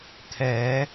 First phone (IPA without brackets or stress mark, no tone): t̪ʰ